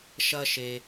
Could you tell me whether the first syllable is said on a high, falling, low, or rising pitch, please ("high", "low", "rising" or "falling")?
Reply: high